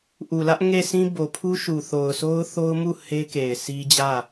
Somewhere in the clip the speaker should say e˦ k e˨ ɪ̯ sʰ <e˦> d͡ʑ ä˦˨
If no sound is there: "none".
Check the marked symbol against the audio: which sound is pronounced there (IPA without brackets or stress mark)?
i˦